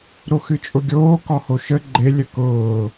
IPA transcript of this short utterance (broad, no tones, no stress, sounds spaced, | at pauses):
ɾ o x ɨ t͡ʃʼ ʊ ɡʲ oː k ɒ h o ʃ ə ɡ͡ǃ e lʲ ə k ʊː